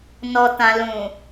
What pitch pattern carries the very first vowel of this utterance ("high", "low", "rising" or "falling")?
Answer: low